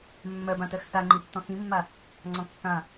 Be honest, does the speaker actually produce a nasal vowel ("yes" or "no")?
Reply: yes